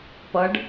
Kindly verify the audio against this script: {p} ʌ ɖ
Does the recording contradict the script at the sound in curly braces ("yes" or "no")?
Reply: no